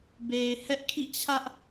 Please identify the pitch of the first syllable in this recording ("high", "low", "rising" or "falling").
low